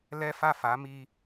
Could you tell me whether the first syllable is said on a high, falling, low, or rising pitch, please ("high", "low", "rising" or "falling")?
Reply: high